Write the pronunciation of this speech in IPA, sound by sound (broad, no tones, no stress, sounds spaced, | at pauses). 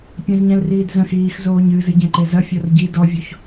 pʲ ɐ̃ z ɲ ɛ̃ l r iː d z ɐ̃ x iː x z oː ɲ ɨ z ɨ ɟ ɛ̃ ǃ e z ɐ fʲ ɔ r ɟ i d ɔ vʲ o ç